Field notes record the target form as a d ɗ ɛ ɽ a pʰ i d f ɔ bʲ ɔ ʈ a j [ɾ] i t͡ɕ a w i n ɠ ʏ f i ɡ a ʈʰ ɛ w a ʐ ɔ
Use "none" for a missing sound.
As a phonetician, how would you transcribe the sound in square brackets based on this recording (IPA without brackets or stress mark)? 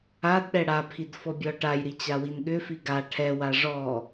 ɾ